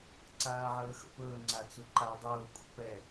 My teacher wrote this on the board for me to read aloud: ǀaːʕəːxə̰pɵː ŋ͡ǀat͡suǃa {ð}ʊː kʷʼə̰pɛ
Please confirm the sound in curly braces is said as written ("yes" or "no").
no